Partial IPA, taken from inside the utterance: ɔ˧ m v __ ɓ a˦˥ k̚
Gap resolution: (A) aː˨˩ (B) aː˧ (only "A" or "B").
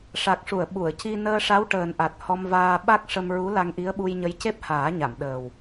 B